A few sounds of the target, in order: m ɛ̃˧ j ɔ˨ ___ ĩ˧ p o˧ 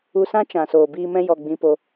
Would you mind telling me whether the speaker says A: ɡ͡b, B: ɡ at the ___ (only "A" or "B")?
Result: A